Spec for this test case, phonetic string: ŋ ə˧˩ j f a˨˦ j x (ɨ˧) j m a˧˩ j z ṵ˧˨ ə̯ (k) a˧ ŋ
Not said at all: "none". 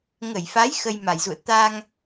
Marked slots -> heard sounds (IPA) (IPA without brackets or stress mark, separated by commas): ə˧, t̪